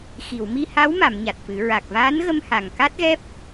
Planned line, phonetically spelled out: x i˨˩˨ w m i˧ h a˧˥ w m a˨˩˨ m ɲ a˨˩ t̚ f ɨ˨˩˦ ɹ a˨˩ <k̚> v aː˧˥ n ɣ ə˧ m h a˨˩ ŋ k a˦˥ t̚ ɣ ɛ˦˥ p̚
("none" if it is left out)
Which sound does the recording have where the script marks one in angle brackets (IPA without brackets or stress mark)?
k̚